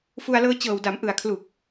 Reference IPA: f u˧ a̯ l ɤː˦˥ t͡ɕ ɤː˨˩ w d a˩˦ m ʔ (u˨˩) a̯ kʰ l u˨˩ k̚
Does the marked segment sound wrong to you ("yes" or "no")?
yes